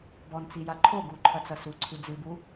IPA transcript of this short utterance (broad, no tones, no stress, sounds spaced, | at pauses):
b ɔ n t͡s i j a ǃʰ o ɡ u ǃʰ ɐ t͡s ɐ s u ǀʰ ɨ d͡z ɨ b u